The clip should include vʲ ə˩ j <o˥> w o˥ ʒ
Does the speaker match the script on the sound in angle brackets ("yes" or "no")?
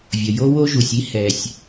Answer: yes